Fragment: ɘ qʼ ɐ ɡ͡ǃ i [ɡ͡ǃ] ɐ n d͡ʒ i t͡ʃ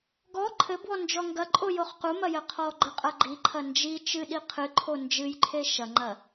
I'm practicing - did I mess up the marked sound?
yes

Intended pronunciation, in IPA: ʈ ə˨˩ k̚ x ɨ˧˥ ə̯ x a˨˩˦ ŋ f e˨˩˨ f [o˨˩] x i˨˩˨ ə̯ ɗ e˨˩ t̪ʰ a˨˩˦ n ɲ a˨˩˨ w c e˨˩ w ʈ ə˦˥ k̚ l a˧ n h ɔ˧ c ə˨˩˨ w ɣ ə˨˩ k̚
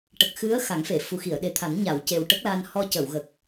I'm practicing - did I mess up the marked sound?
yes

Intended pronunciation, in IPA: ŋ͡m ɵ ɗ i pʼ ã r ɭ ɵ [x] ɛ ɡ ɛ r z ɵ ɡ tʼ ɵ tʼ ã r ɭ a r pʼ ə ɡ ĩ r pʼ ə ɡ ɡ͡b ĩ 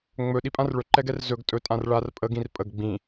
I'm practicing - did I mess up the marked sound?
yes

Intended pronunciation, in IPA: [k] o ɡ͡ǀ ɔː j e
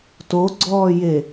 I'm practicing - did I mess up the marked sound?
yes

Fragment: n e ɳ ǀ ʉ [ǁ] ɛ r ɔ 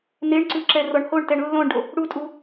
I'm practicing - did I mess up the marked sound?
no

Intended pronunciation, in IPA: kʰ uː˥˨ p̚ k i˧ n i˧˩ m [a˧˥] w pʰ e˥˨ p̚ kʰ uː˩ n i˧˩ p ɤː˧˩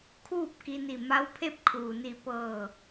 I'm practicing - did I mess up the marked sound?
no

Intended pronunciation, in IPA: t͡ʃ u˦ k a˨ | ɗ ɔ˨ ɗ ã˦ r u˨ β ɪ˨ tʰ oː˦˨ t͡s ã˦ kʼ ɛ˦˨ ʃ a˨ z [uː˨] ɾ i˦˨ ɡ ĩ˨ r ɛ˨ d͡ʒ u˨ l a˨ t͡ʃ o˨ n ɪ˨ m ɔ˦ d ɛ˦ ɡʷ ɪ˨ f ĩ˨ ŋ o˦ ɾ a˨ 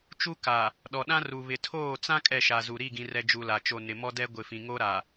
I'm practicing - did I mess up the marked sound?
yes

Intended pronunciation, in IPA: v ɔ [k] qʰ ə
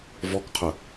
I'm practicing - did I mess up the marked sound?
no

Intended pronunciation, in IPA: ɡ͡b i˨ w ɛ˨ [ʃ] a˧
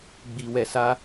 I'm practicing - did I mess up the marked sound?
yes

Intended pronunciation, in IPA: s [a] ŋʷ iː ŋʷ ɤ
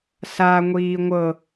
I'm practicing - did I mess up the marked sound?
no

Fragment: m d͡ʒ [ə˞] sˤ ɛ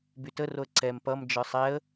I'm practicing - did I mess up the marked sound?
no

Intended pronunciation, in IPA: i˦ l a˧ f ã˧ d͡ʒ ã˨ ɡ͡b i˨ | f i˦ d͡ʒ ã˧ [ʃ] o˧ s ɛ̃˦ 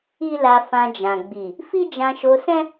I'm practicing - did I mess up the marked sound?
no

